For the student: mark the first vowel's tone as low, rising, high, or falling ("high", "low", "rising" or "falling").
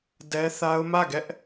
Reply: high